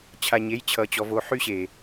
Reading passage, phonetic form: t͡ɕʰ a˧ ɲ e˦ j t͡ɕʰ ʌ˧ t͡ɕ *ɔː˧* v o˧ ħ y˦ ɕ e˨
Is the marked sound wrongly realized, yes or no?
yes